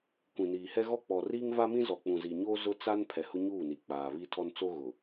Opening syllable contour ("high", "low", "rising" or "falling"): low